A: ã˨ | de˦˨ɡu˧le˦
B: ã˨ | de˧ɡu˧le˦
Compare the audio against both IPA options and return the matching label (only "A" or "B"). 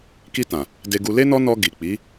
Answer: B